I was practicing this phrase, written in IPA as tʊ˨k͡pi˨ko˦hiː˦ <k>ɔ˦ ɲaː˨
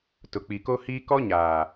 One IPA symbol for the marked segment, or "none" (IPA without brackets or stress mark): k